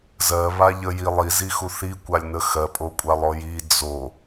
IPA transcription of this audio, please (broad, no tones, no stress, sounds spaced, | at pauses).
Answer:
z ɜ β a ʎ ə j i lˠ i z i x u θ i kʷ a lʲ n ə x ɜ pʼ o kʷʼ a lˠ ɔ j i d͡z o